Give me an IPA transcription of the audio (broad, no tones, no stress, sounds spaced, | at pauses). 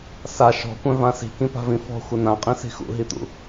s a ʃ ɔ̤ kʷ œ̃ v ã s i̤ k ĩ p a̤ v ĩ f ɔ̤ xʷ ə n ã qʼ ĩ s i̤ x ṵ ɦ i t̪ ṵ